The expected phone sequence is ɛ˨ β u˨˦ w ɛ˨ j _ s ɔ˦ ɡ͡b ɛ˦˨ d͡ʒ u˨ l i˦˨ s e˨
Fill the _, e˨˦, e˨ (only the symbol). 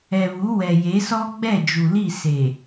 e˨˦